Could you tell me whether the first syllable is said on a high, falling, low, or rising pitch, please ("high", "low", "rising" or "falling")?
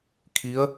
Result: rising